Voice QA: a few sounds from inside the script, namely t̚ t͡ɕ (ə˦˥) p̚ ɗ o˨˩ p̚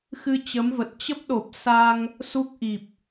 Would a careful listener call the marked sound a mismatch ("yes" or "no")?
no